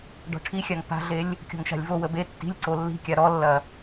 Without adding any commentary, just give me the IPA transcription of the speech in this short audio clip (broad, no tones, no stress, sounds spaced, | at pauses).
ɖ ɔ̤ ʈʰ i xʲ a ŋ p a̤ ɮ e lʲ | kʲ ɔ̤ ŋ ʃ a̤ lʲ v o w ə b e tː i̤ lʲ ǀ o lː i̤ kʲ a ɾ ɔ lː ɐ